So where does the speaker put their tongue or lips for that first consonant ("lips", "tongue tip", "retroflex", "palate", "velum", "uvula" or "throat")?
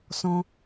tongue tip